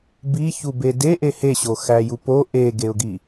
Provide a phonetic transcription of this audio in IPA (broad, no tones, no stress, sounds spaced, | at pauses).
b i ç u b e d e ʔ e h e ɕ o x æ j u p o ʔ e ɡ e ʊ̯ ɡ i